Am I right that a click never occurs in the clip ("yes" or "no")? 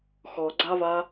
no